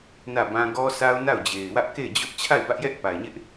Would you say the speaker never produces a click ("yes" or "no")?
yes